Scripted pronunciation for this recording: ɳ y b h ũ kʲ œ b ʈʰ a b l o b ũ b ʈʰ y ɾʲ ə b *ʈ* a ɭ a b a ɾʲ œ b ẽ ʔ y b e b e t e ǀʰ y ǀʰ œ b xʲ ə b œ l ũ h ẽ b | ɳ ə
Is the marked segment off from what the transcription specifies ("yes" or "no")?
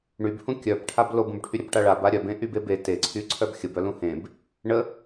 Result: no